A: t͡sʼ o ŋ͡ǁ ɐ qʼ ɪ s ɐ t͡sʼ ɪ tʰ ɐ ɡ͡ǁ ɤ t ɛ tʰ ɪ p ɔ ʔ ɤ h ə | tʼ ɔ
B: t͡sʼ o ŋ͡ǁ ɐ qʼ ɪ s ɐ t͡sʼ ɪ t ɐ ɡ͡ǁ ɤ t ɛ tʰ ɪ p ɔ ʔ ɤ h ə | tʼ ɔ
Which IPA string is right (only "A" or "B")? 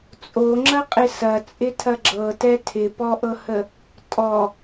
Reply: A